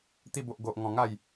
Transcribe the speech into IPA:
t̪i˧bo˨ʔ ɡo˨ʔŋɔ̃˨˩ ŋa˥˧j

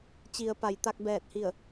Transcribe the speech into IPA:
t͡ɕi˩˧ə̯pa˩˧jt̪a˧k̚ bɛː˧˩t̚hi˧˩ə̯

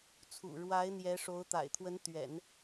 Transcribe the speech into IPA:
t͡sʰṵ˨˩ ɻwa˧˥ɪ̯ n̪jɛ˧˥ʂo˧˥ʊ̯t̪a̰˨˩ɪ̯ t̪ʰwə˧˥nt̪ɥɛ̰˨˩˦n

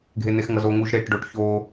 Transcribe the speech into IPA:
ɡʱen̪exŋʌzo ŋuʒɾeʈɖoʈ ço

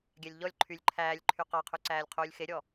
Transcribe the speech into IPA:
ɡʲælʲʎɔlʲ ǃʰylʲ ǃʰæːlʲǃʰy qɑqʰʉǀæːlʲ qʰuːlʲxeɾʲɔ

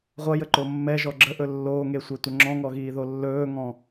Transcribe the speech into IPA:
ʁʷʌjəǃo mːɛʒɔ ɡ͡ǁəʔɵ lːoːŋesʷɛtʷə ŋ͡ǁɔ̃ŋɔɣiːðo lːɵːŋɔ̃

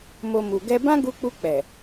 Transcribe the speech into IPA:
mo˧mu˨ ɡɛ˧bã˦ɡu˧k͡pu˧ k͡pɛ˨

